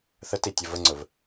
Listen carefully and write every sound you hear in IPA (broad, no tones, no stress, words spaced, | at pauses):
θətitʲə vəŋ͡ǀɵv